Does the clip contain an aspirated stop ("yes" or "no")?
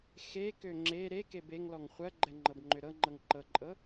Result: no